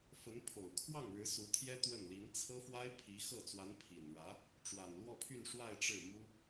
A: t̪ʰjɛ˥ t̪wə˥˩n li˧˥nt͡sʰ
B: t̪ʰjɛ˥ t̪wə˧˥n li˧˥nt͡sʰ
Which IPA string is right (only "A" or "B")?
A